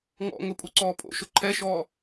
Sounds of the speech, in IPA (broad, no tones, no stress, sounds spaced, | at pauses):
ŋ ɔ̰ ŋ ʊ pʼ u ǀ ɔː pʼ o̰ ʃ ʊ ǃʰ ɛ ʃ ɔː